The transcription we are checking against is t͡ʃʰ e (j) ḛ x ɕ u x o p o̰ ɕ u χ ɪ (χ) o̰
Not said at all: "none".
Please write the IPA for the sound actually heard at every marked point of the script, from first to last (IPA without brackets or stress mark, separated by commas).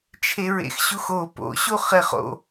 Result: ɹ, χ